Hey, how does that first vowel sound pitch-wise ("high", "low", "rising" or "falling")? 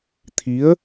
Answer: rising